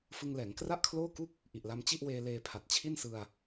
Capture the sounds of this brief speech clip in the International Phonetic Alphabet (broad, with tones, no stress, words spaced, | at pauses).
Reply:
fɯ˧ŋlɛː˩˦ŋ kra˥˩ʔkʰloː˥˩ku˥˩k̚ | ʔi˨˩ʔla˧m t͡ɕi˥˩ʔweː˧ leː˧pʰa˨˩t̚t͡ɕʰi˥˩nsɯ˧a̯